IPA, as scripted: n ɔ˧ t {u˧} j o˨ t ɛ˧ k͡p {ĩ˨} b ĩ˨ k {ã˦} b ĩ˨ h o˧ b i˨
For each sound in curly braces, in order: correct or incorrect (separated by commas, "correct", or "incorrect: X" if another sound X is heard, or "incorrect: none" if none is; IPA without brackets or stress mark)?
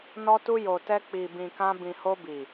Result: correct, incorrect: i˨, incorrect: ã˧